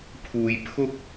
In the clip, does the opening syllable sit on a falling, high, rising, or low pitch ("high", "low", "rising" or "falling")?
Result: low